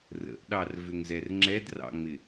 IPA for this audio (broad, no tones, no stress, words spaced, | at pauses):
rə̰ʔɗɑrvʏŋzɛr ŋ͡ǁɛdrɑ̰ŋ͡mɪ